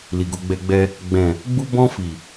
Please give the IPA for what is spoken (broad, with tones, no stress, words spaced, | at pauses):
li˨ɡo˧ɡ͡bɛ˧ɡ͡bɛ˧ | ɡ͡bɛ̃˨ | ɡ͡bu˧bɔ̃˧ fi˨